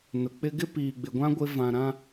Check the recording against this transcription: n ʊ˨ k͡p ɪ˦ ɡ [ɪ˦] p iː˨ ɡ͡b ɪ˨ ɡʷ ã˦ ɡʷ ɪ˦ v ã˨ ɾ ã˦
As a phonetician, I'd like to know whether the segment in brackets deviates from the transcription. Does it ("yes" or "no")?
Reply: no